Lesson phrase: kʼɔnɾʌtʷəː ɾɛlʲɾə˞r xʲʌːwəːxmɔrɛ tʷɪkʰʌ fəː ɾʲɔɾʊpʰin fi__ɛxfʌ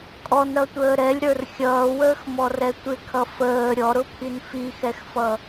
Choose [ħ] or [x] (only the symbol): x